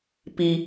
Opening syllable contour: low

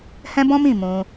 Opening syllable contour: high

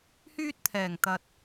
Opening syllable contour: high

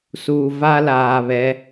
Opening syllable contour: low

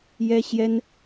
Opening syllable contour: high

